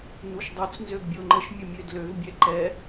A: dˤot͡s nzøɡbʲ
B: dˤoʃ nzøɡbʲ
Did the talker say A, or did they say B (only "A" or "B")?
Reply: A